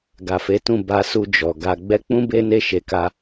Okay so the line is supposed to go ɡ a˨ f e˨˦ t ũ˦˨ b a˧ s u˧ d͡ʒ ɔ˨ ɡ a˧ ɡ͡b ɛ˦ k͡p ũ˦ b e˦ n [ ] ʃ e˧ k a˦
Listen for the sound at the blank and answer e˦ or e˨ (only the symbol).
e˦